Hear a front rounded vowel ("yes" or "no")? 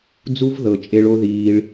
no